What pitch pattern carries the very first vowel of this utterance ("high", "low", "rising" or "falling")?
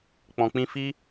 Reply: low